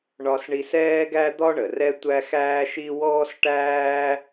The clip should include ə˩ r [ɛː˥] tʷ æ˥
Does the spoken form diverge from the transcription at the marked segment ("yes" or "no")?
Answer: yes